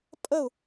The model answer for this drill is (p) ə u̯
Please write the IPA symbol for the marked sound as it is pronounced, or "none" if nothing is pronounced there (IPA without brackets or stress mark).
pʼ